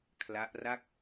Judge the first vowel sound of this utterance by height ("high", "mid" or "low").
low